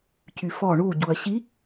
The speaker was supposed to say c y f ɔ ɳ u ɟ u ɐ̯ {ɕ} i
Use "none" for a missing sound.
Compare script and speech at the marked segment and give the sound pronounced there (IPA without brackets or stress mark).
ɕ